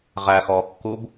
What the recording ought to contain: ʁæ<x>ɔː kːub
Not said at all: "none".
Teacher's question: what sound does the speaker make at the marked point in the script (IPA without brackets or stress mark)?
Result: x